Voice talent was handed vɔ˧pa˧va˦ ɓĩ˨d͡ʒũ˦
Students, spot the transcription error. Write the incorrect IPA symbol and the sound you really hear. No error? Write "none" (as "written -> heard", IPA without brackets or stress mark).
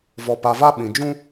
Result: none